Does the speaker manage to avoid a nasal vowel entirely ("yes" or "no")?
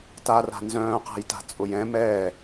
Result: no